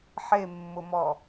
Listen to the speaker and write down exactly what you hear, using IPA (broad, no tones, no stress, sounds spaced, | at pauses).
ħ e mː ʊ m ɔ